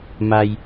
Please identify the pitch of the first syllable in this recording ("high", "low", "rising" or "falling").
low